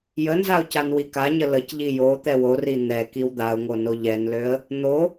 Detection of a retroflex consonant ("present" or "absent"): absent